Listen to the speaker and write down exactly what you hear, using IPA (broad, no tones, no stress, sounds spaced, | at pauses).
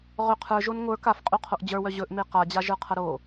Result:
ʁ ɵ qʰ ə˞ ʒ o n ŋʷ ə˞ k a f qʼ u qʰ o ʔ d͡ʑ ə˞ w œ ʑ ɵ ʔ m e q a d͡ʑ a ʒ ə˞ qʰ ɐ ɾ o